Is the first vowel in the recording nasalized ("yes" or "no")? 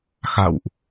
no